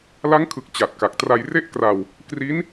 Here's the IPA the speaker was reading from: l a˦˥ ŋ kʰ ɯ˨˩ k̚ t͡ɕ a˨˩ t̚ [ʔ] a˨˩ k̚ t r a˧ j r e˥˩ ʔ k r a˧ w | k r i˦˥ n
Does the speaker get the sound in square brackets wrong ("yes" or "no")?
yes